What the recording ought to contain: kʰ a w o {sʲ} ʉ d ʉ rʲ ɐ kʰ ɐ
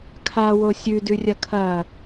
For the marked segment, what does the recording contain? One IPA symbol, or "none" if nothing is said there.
sʲ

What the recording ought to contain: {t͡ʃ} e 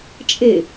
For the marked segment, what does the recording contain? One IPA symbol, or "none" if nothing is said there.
t͡ʃʼ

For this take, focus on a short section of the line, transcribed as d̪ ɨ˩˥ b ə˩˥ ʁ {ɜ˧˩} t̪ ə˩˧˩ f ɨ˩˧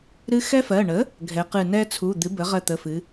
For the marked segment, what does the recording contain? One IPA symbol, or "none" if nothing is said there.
ɜ˧˩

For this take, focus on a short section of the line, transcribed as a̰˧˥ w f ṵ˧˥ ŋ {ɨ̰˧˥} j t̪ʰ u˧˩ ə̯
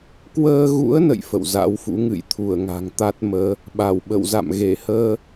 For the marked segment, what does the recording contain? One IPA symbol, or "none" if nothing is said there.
ɨ̰˧˨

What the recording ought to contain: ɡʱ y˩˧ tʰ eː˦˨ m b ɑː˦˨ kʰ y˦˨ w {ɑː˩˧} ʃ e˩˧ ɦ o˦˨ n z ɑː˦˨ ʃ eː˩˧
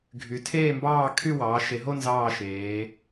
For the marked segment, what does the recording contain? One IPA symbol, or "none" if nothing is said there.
ɑː˩˧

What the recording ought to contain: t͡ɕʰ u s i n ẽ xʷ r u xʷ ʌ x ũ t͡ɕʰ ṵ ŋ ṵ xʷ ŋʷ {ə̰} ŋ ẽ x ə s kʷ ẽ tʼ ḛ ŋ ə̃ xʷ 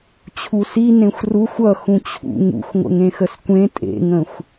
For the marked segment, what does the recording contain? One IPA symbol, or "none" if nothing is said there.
ə̰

